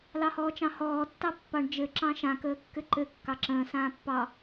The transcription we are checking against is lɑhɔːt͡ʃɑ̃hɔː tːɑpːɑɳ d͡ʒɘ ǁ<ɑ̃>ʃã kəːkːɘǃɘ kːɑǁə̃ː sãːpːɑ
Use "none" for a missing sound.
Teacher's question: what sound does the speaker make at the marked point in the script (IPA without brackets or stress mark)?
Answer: ɑ̃